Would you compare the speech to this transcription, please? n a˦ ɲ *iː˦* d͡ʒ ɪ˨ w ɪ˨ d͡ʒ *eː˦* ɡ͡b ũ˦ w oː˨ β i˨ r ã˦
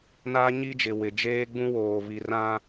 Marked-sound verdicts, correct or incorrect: incorrect: i˦, correct

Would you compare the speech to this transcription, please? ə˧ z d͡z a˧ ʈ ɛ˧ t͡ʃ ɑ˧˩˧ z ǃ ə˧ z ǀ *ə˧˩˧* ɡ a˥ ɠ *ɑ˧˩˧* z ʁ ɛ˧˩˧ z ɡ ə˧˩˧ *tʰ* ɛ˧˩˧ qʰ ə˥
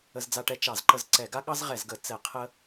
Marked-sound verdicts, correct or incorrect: incorrect: ɛ˧˩˧, incorrect: ɑ˥, incorrect: t͡s

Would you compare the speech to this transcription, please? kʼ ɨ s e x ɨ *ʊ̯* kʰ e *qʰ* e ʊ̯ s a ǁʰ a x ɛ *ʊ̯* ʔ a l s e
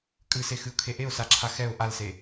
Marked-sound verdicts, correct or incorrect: correct, incorrect: ʔ, correct

